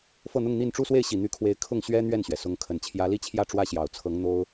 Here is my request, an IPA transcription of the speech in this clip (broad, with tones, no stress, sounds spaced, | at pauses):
f ɤ˥˧ n̪ ʊ˥˧ ŋ n̪ i˥˧ n ʈ͡ʂ u˥˧ s w e˥˩ ɪ̯ ɕ i˨˩ n̪ y˧˥ kʰ w e˧˥ ɪ̯ kʰ ʊ˥˩ ŋ ɕ ɥ ɛ˥ n̪ ɥ ɛ˥˩ n ɕ ɥ ɛ˩ s ʊ˧˥ ŋ kʰ ə˨˩ n t͡ɕʰ j ä˧˥ l i˥˧ t͡ɕʰ j ä˥˩ ʈ͡ʂ w ä˥ ɕ j ɑ˨˩ ʊ̯ t͡sʰ ɤ˧˥ ŋ n̪ o˥ ʊ̯